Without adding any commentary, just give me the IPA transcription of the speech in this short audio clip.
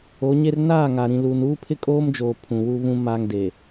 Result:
o˨˦ ɲ e˦ r n aː˦˨ ŋ a˨ ɾ ĩ˨ l uː˨ n uː˦ pʰ ɪ˦ kʼ oː˦ m d͡ʒ oː˨ pʰ ũ˨ w u˦ β ũ˦ m aː˦ ŋ d e˨

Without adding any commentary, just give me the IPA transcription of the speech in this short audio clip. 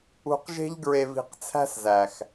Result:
ṳ˧ q ʒ e̤˦ ʎ ɡ ɹ e˧ v i̤˧ q t͡sʰ æ̤˦ s z æ˨ x

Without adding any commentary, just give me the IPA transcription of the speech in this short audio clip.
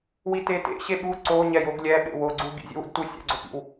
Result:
w i t e t ḛ ɕ e ɓ u ǀ o ɲ ɛ j o ɡ lʲ ɛ ɓ ḛ w o ɡ͡ǀ u ɡ ḭ zʲ ḛ w ṵ d t u sʲ ɛ̰ ɡ͡ǀ o p ḭ w

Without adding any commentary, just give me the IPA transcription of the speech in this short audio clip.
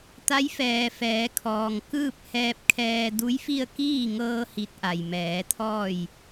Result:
t̪ a˧˥ j f ɛː˩ f ɛː˩˧ kʰ ɔː˩ ŋ k ɯː˥˨ p̚ h ɛː˧ p̚ kʰ ɛː˧ d u˧˥ j f i˥˨ ə̯ k iː˥˨ ŋ ɤː˧ h i˧˥ t̚ ʔ a˩ j m ɛː˩˧ t̪ʰ ɔː˥˨ j

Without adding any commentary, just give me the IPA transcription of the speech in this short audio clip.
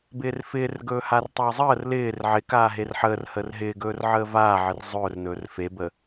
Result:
b ɪː r f ɪː r ɡ ɵː h a r tˤ əː zˤ əː r l ɪː r ʕ ɪ k aː ɦ e r ħ əː r h əː r ɦ ɪː ɡ ɵː r ʕ əː v aː ʕ ɪ r zˤ ɵː r n ɵː r f e b əː

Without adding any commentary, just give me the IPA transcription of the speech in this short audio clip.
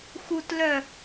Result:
x u t l œ

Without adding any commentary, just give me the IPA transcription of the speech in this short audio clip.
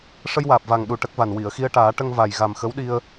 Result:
ʂ ə˧ j w aː˨˩ p̚ v a˨˩ ŋ ɗ u˨˩ ʈ ə˦˥ k̚ v a˨˩ n w i˨˩˨ ə̯ x i˧ ə̯ ʈ aː˨˩˦ ʈ ə˧ ŋ v a˨˩ j ɣ a˨˩ m x ə˧˥ w ɗ i˧ ə̯

